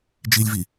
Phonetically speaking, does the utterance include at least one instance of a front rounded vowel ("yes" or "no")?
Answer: no